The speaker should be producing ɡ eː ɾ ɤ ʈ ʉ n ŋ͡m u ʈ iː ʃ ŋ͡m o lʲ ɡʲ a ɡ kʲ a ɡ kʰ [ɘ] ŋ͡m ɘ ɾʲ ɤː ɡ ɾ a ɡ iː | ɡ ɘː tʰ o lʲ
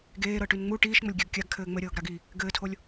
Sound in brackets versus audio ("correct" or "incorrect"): incorrect